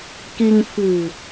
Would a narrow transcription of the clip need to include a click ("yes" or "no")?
no